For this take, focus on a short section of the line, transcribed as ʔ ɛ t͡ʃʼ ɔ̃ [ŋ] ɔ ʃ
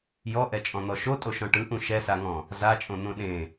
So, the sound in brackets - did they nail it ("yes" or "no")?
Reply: no